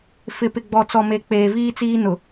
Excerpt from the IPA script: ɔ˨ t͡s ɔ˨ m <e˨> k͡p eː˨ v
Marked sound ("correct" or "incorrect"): correct